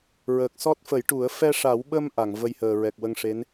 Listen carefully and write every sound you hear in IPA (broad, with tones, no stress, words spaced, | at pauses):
ɹəː˨˩k̚sɔ˦˥t̚fə˨˩˦jʈu˨˩˦ə̯ fɛ˧ʂa˨˩˦wɓə˧m ʔa˨˩˨ŋvə˧jhəː˨˩ ɹɛ˨˩k̚wə˧ŋʂe˧˥n